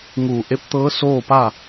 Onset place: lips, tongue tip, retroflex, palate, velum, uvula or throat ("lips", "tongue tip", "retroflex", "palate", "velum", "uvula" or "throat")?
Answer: velum